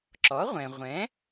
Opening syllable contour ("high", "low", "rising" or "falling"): rising